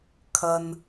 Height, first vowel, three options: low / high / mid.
low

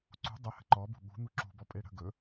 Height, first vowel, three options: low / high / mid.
high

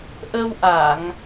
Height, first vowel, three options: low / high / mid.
mid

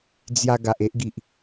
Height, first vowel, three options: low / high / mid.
low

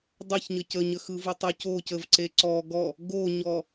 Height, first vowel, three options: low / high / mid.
mid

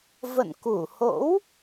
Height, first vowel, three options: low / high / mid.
mid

